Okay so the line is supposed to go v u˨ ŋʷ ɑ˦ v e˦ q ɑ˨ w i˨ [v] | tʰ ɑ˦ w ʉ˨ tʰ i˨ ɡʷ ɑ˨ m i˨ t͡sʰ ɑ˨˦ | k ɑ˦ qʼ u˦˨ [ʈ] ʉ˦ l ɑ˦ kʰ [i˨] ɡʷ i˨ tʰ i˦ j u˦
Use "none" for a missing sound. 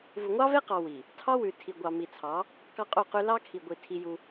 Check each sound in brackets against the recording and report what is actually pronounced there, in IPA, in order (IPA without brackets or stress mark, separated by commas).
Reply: none, q, i˨